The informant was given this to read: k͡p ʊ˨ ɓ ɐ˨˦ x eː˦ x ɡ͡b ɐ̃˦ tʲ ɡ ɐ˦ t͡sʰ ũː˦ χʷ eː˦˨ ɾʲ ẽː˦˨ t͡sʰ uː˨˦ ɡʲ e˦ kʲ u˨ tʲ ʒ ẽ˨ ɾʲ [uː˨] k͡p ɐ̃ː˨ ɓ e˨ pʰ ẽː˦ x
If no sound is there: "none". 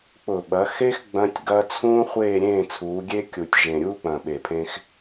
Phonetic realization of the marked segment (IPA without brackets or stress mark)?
uː˦